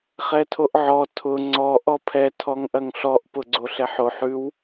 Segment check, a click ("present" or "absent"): present